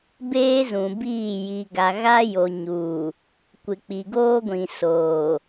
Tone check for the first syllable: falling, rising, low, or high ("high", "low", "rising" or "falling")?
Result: high